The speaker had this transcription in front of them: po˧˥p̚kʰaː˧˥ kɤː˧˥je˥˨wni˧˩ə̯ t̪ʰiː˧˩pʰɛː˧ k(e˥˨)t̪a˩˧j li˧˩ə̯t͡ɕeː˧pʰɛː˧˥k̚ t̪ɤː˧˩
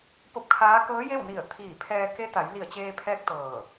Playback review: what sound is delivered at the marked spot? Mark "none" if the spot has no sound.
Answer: e˧˥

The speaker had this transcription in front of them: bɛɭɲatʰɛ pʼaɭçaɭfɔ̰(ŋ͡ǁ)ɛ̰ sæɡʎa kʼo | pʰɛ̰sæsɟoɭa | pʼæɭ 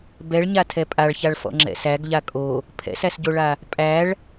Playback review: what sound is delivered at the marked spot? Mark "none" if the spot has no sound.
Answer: ŋ͡ǁ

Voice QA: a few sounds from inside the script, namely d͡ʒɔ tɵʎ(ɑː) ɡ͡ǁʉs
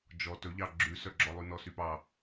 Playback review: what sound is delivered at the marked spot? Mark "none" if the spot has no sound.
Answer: ɑ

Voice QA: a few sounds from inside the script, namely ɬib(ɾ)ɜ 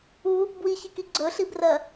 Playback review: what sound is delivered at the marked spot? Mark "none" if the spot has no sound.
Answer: r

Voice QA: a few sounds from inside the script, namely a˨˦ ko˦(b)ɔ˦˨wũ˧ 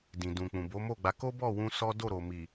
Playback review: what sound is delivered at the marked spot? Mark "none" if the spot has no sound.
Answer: b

